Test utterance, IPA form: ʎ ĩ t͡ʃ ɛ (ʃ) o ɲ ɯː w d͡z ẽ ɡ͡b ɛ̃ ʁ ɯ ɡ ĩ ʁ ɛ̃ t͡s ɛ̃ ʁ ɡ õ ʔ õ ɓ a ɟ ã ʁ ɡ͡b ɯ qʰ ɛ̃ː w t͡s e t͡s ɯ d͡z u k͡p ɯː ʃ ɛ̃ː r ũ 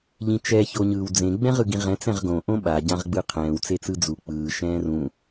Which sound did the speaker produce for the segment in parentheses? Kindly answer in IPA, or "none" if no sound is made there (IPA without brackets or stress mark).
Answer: ç